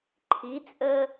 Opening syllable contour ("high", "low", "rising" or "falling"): rising